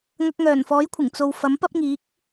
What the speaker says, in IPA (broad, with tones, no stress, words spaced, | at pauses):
ŋɐ˧k̚ŋœː˨˩n fɔː˨˥jkʷʰɪ˨˩ŋ t͡so˨wfɐ˨˥m pɐ˥p̚ŋiː˨˥k̚